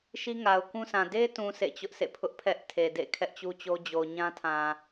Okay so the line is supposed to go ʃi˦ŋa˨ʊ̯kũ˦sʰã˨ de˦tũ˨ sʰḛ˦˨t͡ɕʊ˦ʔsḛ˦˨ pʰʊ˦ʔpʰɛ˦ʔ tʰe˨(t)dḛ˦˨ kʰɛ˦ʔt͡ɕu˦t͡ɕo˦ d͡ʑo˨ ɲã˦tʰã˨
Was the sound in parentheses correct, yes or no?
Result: no